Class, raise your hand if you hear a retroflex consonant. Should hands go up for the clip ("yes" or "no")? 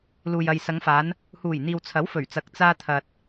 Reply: no